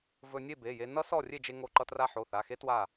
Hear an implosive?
no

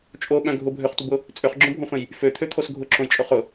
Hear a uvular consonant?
yes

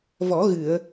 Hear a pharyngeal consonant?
no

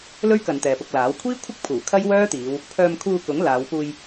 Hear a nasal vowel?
no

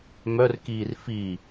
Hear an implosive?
no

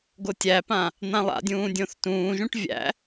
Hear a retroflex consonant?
yes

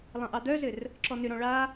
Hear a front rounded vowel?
yes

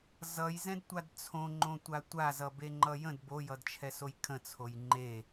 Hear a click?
yes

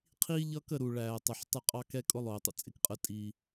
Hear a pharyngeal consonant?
yes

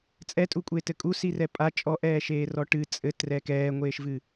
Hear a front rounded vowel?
no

